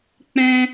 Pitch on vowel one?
high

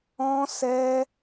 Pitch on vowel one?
high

